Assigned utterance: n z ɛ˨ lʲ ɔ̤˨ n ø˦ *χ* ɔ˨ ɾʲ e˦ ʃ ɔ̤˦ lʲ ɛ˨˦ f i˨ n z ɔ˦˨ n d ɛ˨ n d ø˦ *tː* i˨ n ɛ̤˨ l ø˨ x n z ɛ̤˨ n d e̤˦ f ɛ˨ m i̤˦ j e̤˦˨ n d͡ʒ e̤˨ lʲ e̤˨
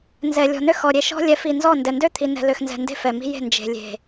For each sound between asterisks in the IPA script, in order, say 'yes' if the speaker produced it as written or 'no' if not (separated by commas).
no, no